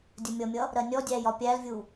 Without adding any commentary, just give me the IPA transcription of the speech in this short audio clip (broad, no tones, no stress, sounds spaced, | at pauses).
dʲ ə mʲ ʌ mʲ ʌ | ɾ ɜ nʲ ɔ dʲ æ j ɒ pʲ æ l vʲ u